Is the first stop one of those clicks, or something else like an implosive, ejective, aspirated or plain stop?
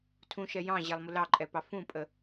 aspirated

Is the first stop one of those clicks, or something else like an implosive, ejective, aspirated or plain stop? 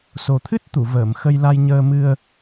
aspirated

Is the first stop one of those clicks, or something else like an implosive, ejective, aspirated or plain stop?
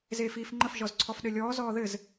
click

